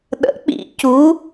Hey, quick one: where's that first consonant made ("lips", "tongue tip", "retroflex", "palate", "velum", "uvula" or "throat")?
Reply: tongue tip